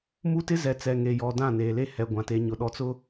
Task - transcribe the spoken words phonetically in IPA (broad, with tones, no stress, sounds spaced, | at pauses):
m u˦ t ɪ˦ z ɛ˨ t͡s ɛ˨ ŋ e˨ j ɔ˨ d ã˦˨ n eː˨ l e˦ h ɛ˨ ɡʷ ã˨ t e˨ ɲ ʊ˨ ɗ ɔ˨ t͡s ʊ˦